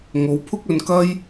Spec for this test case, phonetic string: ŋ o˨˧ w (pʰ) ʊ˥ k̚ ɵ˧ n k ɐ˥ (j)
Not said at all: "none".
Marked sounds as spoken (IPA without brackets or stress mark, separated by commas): pʰ, j